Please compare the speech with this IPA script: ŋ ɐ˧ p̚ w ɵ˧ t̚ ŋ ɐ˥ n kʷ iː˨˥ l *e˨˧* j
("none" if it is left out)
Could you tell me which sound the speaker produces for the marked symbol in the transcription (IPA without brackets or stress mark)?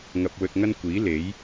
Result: e˨˥